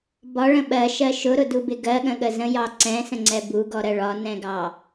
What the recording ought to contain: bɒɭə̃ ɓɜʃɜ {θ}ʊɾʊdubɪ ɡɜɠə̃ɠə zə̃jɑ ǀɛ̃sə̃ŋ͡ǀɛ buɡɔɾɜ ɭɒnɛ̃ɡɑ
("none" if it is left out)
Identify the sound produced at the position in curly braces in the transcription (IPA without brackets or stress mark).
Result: ʃ